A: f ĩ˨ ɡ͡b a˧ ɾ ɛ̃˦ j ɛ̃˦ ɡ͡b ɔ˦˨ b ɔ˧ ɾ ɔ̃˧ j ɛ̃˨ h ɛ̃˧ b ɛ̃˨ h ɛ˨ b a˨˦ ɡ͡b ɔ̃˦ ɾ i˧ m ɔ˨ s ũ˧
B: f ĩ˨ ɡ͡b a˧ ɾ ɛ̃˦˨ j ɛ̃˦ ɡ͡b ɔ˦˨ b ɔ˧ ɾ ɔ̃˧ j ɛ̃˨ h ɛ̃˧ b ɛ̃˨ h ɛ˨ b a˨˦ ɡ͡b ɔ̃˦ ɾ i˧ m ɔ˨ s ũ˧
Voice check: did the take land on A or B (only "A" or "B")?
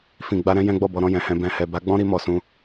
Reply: A